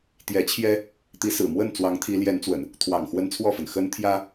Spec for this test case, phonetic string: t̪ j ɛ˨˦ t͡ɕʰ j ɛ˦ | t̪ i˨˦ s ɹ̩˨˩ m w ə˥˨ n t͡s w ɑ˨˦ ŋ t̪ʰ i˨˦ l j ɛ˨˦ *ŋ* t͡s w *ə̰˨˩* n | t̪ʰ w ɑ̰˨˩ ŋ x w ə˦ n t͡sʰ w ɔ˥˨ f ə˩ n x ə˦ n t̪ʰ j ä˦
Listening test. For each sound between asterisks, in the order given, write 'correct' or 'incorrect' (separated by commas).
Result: incorrect, correct